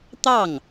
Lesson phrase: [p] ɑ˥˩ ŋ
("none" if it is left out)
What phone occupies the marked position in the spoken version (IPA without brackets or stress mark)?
t̪